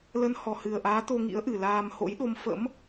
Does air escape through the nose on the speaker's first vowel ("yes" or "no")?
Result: no